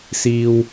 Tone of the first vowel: low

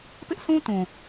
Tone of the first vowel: high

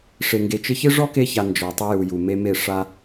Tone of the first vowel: low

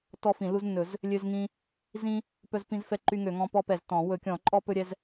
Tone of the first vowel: high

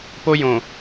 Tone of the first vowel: high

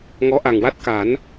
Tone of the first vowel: rising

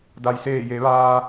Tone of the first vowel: low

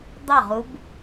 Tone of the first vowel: falling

